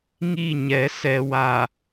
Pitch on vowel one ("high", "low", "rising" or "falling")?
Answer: falling